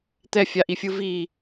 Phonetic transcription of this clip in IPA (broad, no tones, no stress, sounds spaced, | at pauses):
t̪ ɛ fʲ a ʔ i fʲ ɯ v i